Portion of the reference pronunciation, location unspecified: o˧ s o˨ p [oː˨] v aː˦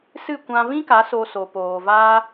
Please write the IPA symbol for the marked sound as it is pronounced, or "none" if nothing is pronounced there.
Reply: oː˨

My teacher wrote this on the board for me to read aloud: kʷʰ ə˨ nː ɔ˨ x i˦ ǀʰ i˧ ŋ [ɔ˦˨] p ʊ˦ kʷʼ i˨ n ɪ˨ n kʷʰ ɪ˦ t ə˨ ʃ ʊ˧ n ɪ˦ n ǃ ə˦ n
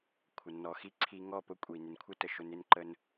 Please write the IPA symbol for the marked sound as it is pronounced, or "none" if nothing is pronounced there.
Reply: ɔ˦˨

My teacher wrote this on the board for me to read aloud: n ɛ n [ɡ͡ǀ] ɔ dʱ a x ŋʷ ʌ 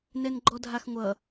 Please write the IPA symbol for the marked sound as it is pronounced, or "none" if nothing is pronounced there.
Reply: ɡ͡ǃ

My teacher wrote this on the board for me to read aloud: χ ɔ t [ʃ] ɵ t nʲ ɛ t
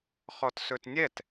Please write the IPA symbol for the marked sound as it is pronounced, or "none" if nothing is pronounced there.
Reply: s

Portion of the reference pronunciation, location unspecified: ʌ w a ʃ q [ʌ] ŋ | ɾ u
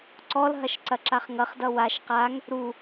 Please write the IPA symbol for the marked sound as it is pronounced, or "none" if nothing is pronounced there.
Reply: a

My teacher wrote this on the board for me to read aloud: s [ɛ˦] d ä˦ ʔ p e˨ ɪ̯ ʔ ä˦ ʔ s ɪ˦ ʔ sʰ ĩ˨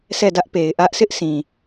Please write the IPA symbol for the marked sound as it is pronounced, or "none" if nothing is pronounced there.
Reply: ɛ˦˨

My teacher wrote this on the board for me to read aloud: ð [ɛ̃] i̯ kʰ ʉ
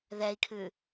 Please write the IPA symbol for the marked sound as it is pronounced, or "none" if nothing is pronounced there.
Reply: ɛ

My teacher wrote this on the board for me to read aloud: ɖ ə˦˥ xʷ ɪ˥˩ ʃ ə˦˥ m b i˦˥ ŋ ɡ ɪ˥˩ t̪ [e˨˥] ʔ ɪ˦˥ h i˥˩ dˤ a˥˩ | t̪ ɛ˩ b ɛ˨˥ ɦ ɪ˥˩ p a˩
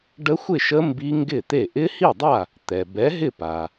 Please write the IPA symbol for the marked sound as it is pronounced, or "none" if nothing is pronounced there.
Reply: e˥˩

